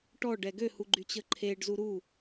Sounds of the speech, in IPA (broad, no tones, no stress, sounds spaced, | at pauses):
ʈ ɔ ɖ ɛ ɡ ø h u ɡ͡ǃ y t͡ɕ ə ǃʰ e ɖ z u ɾ u